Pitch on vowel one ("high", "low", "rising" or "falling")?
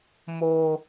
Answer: high